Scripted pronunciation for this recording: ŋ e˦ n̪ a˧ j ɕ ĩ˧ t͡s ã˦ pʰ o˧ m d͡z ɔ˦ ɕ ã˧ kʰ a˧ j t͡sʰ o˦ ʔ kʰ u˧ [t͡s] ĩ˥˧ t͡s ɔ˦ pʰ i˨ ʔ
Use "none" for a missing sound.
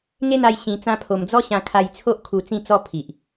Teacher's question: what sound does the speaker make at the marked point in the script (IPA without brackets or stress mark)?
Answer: t͡s